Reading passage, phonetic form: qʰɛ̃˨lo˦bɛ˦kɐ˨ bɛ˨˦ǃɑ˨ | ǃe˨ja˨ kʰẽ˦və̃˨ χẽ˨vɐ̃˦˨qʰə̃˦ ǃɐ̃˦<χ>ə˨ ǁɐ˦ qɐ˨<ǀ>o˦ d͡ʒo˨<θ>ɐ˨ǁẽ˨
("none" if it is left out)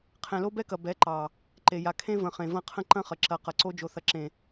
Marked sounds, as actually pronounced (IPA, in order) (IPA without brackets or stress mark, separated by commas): χ, ǀ, θ